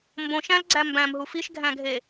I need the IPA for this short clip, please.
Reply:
m b õ ʃ æ̃ l ɡ͡ǀ æ m b æ̃ m ɦ u f i ʃ ɡʱ æ̃ ɡʱ e

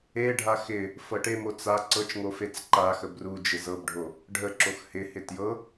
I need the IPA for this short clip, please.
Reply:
e ɖʱ a x ɪ | f ɤ ʈ e m o t͡s a ǀ ɤ t͡ʃ ŋ o f e t͡s ǃ a x ə b r u d͡ʒ ɪ z ɤ b ɖʱ o | ɖʱ ə ǁ o x h ɪ h ɪ t j ɤ

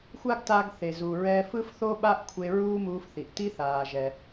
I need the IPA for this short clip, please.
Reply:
xʷ a˥ ɡ t a˧ ɡ θ e˩ z u˩ ɹ ɛ˧ f ɯ˥ f θ o˥ ɓ a˥ ʔ kʷʰ e˧ ɹ uː˥ m uː˧ f θ i˩ ʔ t i˥ θ aː˩ ʒ ɛ˩

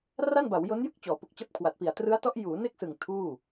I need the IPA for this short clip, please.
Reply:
r a˥˩ n b a˩˦ w j o˦˥ n j ɯ˥˩ k̚ t͡ɕ ɔː˩˦ p u˨˩ k̚ t͡ɕ a˦˥ p̚ kʰ w a˨˩ t̚ p i˨˩ a̯ t r ɯ˦˥ a̯ t ɔ˦˥ ʔ j uː˩˦ n e˥˩ k̚ s ɯ˨˩ ŋ tʰ uː˥˩

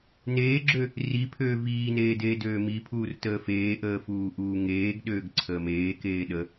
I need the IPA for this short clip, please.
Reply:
n eː ɡ͡ǁ ø | r i pʰ øː v iː n eː d eː d øː m i pʰ uː r t əː f eː ʔ əː f uː ʔ uː ŋ eː ɡ ɗ øː ɡ ǀʰ əː m eː k eː ɗ ə

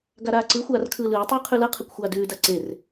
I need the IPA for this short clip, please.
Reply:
ɡ a ɾ aː ǀ ɯ xʷ aː r kʰ ɯː l ɯː tˤ ʉː qʰ ʉ l ʌ qʰ ɯ kʷ xʷ aː d ʉː d a ǀ e r

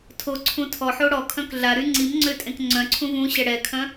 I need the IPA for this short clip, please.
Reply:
tʰ o ǀʰ ũ tʰ ɔ ħ o ɽ ɔ kʰ œ̃ k ɮ a ɾ y ŋ͡ǀ i m ŋ͡ǀ ø tʼ ẽ k ŋ͡ǀ œ̃ ǀʰ ũ v ũ ɕ ɛ ɽ ɛ kʰ œ̃

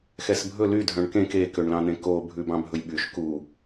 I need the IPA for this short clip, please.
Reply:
x ɛ s bʱ ɵ l y dʱ œ̃ ɳ k ẽ k e k ø ɳ l ɑ̃ n̪ ẽ k o bʱ ʉ b ɑ̃ bʱ ɵ j ɓ y ʃ k u

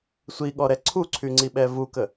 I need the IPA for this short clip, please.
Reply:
sʷ i ɠ ɔ ɾ ɛ ǀʰ u ǀʰ y ŋ͡ǀ i ɓ ɛ v u k ə

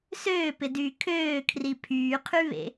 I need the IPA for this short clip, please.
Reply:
s øː p ɪ d yː kʰ øː kʰ r i pʰ yː qʰ y β ḛ

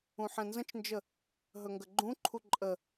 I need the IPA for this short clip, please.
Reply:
ũ ħ ɛ̃ n z ə̃ t͡ʃ n d͡ʒ ə | ɦ ɵ ŋ ɡ ə ɡ͡ǃ ũ ǃʰ u ǃʼ ə

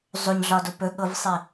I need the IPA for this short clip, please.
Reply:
zˤ o ɲ ɮ ɒ d o p ɵ ɠ ɤ v sˤ i

